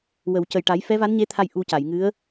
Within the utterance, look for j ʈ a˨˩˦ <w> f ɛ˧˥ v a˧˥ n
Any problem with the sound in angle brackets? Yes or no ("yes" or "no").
yes